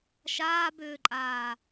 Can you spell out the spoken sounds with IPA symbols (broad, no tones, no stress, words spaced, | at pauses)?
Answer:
ʃaːbʏːǃʼaː